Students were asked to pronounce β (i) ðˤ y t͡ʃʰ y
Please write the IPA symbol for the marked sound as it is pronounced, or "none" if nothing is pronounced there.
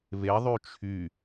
e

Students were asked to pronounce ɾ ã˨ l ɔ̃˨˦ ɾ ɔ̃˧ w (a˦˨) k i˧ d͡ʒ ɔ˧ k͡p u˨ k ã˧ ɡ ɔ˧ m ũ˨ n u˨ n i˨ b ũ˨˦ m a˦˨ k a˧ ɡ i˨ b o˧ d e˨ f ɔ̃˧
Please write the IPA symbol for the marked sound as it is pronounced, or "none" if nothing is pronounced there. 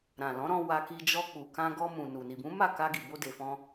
a˧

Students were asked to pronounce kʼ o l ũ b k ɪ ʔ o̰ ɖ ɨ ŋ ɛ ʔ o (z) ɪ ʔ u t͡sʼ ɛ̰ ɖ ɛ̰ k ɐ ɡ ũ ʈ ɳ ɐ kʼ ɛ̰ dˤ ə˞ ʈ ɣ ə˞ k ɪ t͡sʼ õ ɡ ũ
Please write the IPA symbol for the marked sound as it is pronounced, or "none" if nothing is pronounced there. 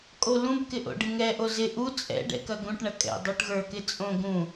z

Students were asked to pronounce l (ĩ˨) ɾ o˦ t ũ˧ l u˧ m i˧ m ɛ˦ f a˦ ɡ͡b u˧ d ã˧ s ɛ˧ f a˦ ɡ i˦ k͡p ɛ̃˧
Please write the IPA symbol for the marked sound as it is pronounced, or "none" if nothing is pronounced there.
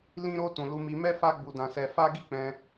ĩ˦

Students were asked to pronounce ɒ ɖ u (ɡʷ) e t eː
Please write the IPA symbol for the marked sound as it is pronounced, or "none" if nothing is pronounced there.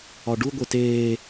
ɡʷ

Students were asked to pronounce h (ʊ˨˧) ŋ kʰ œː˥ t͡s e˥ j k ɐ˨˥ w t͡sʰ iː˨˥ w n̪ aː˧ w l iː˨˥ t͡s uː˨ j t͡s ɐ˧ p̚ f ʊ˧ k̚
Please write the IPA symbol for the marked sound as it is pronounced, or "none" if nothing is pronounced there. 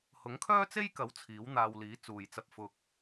ʊ˨˥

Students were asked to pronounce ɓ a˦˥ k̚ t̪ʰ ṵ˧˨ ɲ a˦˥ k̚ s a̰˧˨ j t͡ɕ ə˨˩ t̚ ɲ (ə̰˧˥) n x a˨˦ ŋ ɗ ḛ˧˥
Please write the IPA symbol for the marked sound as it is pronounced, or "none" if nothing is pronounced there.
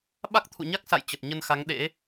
ə˧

